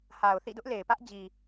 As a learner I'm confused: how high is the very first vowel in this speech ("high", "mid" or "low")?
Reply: low